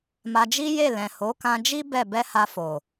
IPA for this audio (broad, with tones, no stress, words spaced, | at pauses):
ma˧d͡ʒi˦je˦˨ lɛ̃˨ho˨˦kã˧d͡ʒi˦ bɛ˦˨ bɛ˧ ha˧fo˨